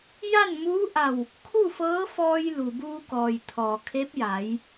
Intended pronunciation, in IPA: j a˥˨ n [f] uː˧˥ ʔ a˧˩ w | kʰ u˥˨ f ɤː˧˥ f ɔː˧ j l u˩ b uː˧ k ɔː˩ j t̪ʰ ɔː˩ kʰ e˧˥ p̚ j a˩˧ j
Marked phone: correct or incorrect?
incorrect